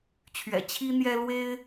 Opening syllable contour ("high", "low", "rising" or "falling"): low